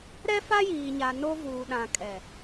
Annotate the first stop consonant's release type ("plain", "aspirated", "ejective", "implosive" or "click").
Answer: implosive